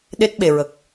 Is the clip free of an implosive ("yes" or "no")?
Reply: no